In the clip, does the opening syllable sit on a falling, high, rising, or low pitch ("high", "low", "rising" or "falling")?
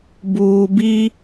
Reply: low